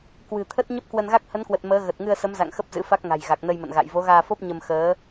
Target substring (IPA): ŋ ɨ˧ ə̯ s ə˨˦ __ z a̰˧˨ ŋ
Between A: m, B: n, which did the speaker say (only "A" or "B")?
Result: A